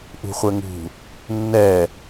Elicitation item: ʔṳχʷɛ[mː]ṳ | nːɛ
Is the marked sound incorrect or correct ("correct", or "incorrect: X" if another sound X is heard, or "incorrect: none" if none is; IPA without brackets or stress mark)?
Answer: incorrect: ŋ